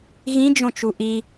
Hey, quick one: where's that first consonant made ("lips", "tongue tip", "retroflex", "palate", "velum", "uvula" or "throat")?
velum